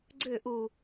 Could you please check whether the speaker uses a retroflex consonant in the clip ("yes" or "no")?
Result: no